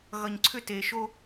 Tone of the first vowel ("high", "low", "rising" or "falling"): low